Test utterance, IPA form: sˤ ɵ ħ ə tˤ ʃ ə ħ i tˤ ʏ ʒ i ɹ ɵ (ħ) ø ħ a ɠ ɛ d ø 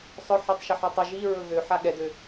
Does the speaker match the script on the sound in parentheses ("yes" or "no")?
no